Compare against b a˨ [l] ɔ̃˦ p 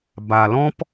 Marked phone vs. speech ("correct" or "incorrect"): correct